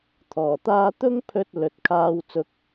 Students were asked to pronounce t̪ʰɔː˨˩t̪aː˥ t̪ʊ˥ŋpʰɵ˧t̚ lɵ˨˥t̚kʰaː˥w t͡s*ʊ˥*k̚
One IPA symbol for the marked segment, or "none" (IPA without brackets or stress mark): ʊ˥